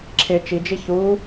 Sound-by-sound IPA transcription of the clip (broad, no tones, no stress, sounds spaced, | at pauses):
ǁʰ ɪ t͡ʃ i d͡ʒ i ç u